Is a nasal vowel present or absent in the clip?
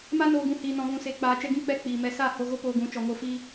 present